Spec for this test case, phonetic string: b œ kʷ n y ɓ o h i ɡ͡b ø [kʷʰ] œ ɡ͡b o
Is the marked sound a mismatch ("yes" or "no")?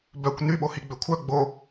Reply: no